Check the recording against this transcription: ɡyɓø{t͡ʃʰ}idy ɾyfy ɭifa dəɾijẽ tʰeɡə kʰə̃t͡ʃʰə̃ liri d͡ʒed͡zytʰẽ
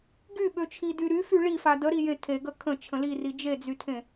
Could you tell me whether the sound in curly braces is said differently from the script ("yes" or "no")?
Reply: no